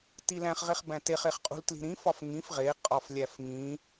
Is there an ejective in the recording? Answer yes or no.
yes